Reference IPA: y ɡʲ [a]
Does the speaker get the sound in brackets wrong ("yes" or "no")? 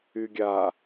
no